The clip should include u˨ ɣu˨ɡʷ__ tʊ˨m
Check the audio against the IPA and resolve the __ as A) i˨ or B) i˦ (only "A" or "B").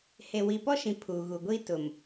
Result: B